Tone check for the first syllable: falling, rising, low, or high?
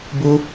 high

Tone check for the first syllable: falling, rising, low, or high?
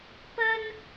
high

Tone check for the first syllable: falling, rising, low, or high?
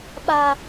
high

